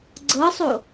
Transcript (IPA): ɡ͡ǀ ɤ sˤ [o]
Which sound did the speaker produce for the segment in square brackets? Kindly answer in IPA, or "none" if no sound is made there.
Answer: o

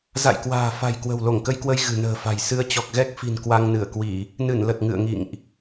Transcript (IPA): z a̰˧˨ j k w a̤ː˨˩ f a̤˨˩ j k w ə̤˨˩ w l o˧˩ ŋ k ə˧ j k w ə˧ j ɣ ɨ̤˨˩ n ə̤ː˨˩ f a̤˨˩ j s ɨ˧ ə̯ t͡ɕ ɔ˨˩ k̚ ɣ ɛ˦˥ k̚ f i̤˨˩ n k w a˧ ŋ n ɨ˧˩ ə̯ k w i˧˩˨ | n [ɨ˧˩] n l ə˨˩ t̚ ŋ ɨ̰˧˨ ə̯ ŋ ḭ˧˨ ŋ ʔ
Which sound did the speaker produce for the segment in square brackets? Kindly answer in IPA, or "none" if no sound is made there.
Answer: ɨ˧˩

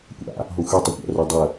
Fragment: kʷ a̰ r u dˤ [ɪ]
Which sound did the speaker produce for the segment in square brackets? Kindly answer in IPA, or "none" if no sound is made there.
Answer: ə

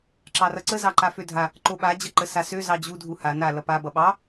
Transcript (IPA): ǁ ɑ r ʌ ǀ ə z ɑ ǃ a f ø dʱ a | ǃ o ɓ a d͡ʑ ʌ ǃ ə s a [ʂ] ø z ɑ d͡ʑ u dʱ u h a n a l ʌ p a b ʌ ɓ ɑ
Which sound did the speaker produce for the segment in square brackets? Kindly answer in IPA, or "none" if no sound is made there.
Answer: s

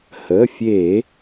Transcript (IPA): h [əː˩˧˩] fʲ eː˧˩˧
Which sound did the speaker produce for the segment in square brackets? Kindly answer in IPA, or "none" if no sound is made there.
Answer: əː˩˧˩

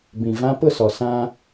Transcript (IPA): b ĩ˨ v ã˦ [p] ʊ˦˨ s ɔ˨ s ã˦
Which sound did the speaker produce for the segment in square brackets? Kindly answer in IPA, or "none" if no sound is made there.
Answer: p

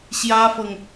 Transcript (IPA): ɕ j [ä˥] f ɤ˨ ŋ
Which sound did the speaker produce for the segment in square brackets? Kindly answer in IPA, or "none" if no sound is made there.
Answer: ä˥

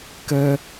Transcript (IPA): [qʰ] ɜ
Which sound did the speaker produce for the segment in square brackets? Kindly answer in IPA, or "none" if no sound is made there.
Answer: k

